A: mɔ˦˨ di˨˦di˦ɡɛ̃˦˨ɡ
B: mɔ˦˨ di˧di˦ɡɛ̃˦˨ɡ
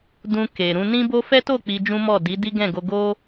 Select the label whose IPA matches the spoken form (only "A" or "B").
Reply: A